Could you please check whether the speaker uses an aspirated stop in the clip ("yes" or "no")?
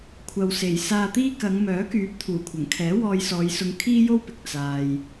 yes